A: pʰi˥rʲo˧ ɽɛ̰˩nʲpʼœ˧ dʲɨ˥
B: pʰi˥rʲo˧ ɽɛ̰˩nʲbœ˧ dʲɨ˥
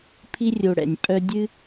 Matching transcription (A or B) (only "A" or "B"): A